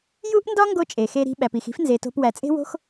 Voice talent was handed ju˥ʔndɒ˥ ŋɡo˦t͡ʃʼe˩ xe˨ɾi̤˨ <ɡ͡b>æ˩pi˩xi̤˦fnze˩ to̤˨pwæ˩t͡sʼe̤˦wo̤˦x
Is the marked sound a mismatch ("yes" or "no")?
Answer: yes